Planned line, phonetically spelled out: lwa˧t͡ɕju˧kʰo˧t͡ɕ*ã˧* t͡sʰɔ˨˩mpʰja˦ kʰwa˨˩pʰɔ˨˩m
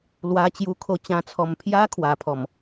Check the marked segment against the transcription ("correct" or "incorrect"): correct